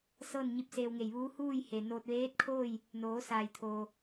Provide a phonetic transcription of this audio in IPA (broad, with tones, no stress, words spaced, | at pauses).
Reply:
sɤː˥˨nɲi˧p̚seː˧wŋe˧˩j ʋuː˧˥huː˥˨jhe˩noː˧t̚ ʋeː˧˥t̚kʰoː˥˨j | noː˩˧saː˩jt̪ʰoː˩